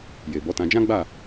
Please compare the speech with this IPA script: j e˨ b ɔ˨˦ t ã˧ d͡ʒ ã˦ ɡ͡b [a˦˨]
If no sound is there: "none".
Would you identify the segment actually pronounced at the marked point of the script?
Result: a˦˨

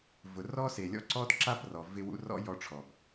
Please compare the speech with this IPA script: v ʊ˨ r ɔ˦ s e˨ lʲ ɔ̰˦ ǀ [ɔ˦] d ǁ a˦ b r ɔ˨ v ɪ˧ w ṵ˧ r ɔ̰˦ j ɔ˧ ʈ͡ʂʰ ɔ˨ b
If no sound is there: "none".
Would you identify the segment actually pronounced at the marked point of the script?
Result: ɔ˦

